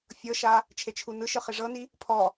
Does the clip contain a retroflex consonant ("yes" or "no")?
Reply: yes